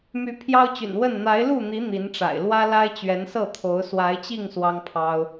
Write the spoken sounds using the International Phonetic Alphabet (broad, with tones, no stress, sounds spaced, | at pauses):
m y˨˦ pʰ j ɑ˦ ʊ̯ t͡ɕ y̰˨˩ n w ə˥˨ n n̪ a˨˦ ɪ̯ l u˥˨ n̪ i˨˦ n̪ i˨˦ n ʈ͡ʂ a̰˨˩ ɪ̯ l w ä˦ l a˦ ɪ̯ t͡ɕ ɥ ɛ˨˦ n s ɤ˥˨ t̪ʰ o˨˦ ʊ̯ s w a˨˦ ɪ̯ t͡ɕ i˥˨ ŋ s w ɑ˦ ŋ pʰ ɑ˦ ʊ̯